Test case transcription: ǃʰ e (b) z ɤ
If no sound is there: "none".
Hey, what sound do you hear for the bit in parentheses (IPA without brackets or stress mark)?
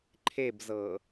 b